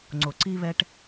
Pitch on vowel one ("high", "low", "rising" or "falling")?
low